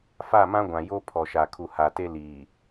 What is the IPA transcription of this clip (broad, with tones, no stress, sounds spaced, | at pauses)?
f a˦˨ m ã˦ ɡʷ ã˨ j o˦ pʰ ɔ˨ ʃ a˨ kʰ u˨ h a˨ t e˦ l iː˨